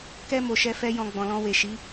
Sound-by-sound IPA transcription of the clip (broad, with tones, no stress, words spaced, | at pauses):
kɛ˧ mo˨ʃɛ˧ fɛ˧jɔ̃˨ ɡ͡bɔ̃˨lɔ̃˧ we˨ʃi˨˦